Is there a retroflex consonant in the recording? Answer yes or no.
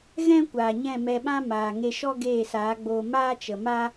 no